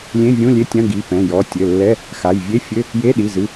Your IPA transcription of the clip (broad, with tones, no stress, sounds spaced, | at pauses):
lʲ ẽ˧˥˧ vʲ ũ˧˥˧ lʲ e˧˥˧ tʲ ɐ̃˧˥˧ ɡ i˩˧˩ p ɛ̃˩˧˩ j ɔ˩˧˩ tʲ ɘ˩˧˩ lː ɛ˧˥˧ | x a˩˧˩ j vʲ e˧˥˧ fʲ ɘ˧˥˧ | j e˧˥˧ ɗ i˩˧˩ z ɨ˩˧˩